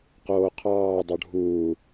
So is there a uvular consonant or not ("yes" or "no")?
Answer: yes